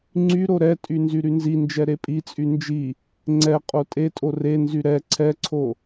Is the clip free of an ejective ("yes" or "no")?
no